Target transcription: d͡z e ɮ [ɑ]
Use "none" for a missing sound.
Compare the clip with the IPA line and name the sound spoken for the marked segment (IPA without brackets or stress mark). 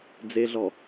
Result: ɔ